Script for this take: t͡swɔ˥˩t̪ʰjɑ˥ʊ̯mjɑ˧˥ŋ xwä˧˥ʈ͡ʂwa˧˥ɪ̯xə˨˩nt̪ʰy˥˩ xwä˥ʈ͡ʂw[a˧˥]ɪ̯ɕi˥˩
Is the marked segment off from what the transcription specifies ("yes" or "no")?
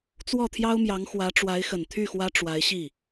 no